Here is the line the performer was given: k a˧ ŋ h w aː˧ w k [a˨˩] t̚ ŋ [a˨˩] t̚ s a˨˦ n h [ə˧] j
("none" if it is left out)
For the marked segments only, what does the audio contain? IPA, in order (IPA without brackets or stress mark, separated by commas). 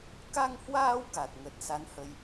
a˨˩, ə˨˩, ə˧